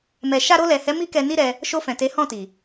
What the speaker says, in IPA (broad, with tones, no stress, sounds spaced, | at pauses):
m ɛ˨ ʃ a˧ ɾ o˧ l ɛ˨ h ɛ˨˦ m i˦ k ɛ˧ n i˦ ɾ ɛ˧ | ʃ o˧ f ɛ̃˨ t e˨˦ h ɔ̃˦˨ t i˨